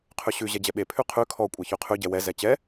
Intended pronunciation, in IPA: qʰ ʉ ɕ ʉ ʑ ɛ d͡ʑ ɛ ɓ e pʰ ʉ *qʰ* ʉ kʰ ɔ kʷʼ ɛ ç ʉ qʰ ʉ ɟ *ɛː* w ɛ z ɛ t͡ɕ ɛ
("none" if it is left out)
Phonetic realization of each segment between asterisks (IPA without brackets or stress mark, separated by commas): qʰ, ɛ